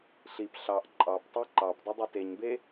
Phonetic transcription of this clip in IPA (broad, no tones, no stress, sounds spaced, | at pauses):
ɬ i p ɬ ɑ ʔ ǃʼ ɑ p tˤ ɯ ǃ ɑ p dˤ ø dˤ e t e ɲ b e